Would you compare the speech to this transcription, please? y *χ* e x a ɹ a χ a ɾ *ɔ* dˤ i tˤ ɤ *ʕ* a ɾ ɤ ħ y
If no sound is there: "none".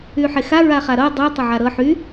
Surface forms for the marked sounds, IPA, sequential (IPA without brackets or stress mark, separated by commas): ħ, ɤ, ʕ